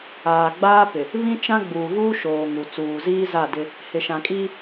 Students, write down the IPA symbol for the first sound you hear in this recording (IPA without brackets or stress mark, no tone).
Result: aː